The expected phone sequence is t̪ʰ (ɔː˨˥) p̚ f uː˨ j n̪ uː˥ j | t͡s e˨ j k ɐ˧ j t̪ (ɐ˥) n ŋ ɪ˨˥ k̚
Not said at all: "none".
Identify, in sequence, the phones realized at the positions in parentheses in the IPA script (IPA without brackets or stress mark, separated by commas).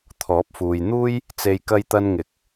ɔː˨˥, ɐ˧